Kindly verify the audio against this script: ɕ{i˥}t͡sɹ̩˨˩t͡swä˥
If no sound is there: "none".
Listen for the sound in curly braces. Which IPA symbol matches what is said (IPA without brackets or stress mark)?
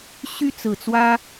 y˥